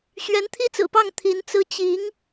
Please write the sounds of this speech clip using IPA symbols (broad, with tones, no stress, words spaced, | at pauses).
ɕɥɛ˧˥nt̪ʰi˥t͡sɹ̩˨˩pɑ˥˩ŋ t̪ʰi˧˥nt͡sɹ̩˥ t͡ɕi˧˥ŋ